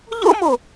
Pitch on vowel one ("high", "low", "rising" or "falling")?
high